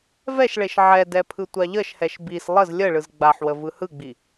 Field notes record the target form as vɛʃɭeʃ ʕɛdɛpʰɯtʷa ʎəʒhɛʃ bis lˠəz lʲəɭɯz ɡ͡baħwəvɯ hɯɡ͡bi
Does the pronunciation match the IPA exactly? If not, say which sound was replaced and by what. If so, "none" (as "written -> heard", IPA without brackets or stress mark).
ʒ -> ʃ